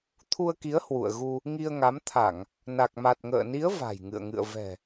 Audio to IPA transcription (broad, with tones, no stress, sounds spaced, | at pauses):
t̪ʰ u˧ ə̯ k i˨˦ ə̯ h w ṵ˧˨ ə̯ ɣ u˧ | ŋ i˧ ə̯ ŋ a˨˦ m t̪ʰ a˧˩˨ ŋ | n a˨˩ k̚ m a˨˩ t̚ ŋ ə̰ː˧˨ n i˨˦ ə̯ v a̤˨˩ j ŋ ɨ̰˧˨ ə̯ ŋ ɨ̰˧˨ ə̯ v ɛ̤˨˩